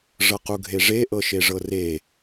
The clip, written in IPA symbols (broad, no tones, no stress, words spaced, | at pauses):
ʐɤquɡʱeʐe ʔɤʃeʐɤre